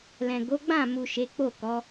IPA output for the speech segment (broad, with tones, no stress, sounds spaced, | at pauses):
l ɛ̃˨ ɡ o˨˦ ɡ͡b ã˦˨ m u˨ ʃ e˨˦ k͡p o˦˨ k ɔ˨˦